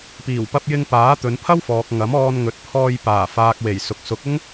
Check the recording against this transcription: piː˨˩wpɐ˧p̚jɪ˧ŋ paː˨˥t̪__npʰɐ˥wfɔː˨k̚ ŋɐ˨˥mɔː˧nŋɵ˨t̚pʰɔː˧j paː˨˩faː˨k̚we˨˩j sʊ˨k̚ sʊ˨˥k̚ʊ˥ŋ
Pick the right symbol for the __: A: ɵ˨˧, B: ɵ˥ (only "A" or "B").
A